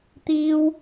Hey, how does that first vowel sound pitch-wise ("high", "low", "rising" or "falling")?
high